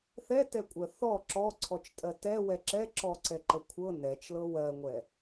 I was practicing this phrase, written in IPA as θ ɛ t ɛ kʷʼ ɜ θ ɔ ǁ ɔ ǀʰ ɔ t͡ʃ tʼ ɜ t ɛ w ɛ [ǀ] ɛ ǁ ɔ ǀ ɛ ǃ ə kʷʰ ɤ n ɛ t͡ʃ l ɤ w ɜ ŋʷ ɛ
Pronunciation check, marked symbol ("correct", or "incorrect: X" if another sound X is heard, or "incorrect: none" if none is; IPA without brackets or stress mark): incorrect: ǁ